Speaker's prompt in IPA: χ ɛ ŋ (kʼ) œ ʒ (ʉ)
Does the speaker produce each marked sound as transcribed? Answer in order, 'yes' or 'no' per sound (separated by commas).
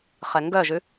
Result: no, yes